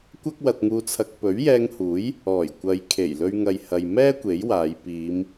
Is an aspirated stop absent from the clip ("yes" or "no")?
no